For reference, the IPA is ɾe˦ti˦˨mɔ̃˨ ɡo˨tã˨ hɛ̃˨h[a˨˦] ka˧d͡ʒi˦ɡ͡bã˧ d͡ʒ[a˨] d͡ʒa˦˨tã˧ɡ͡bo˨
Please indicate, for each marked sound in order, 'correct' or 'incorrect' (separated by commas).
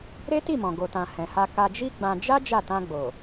incorrect, incorrect